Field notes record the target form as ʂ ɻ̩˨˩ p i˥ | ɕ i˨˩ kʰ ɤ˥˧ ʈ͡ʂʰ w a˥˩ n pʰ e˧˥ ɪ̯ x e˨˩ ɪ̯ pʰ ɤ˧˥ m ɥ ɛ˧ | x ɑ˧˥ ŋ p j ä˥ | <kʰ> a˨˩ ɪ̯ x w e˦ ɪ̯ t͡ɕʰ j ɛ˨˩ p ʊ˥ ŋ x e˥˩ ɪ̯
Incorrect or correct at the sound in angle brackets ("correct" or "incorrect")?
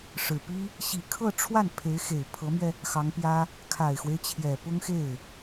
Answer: correct